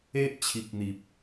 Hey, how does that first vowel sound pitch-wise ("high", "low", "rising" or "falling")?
high